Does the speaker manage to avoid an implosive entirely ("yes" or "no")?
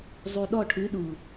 no